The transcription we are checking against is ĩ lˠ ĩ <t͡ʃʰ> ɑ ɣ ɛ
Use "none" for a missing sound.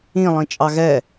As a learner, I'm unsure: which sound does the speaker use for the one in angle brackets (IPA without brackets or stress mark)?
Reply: t͡ʃʼ